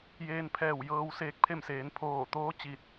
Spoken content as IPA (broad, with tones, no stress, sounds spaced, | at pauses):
j eː˧ n pʰ ɛː˧˩ w j ɤː˧ w s eː˧˥ k̚ pʰ e˥˨ m s eː˩˧ n pʰ oː˧˩ t̪ oː˧˥ t͡ɕ i˧˩ t̚